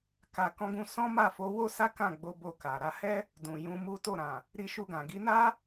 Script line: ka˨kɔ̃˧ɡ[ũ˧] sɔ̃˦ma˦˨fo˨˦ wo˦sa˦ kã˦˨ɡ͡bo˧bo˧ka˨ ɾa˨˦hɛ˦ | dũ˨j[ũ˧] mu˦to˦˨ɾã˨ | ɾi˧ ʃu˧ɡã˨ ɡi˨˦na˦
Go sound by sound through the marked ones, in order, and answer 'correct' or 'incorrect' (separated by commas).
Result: correct, correct